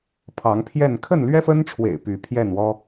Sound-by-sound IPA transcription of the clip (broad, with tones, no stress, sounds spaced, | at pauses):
pʰ ɑ˨˦ ŋ pʰ j ɛ˥˨ n kʰ ə˥˨ n l ɥ ɛ˦ f ə˦ n ʈ͡ʂʰ w ḛ˨˩ ɪ̯ p y˨˦ pʰ j ɛ˥˨ n w ɔ˦